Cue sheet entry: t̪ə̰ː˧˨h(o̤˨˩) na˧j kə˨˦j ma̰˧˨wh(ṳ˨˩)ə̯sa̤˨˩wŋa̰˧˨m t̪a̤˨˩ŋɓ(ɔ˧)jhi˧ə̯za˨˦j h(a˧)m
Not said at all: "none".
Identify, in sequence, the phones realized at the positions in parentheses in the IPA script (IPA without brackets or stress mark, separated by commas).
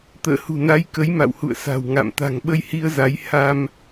ṳ˨˩, ṵ˧˨, ə˧, a˧